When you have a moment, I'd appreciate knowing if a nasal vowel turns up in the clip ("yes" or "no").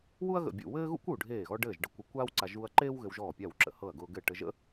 no